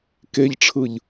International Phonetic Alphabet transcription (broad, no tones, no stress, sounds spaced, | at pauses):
k e ʎ ʈ͡ʂʰ ɯ ʎ